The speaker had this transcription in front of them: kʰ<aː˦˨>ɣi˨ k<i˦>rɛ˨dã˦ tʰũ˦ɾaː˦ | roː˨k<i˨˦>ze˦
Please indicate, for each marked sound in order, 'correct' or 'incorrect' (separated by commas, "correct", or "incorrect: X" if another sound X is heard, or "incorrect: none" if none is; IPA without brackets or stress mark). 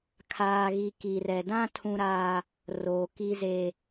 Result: incorrect: aː˨, incorrect: i˨, incorrect: i˦